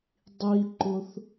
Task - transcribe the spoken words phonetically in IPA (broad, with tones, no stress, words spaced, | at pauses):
dˤi˧ǃʊ˧θ